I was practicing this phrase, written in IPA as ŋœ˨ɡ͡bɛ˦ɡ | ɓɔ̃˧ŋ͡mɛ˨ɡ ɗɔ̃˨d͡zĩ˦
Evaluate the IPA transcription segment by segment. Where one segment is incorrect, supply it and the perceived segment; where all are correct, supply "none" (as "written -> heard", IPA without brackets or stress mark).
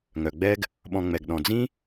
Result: none